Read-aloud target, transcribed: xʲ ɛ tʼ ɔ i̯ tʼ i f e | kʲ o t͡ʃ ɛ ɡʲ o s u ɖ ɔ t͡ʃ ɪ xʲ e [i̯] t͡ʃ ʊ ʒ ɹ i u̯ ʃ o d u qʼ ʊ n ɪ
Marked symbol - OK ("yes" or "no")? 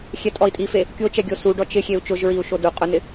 no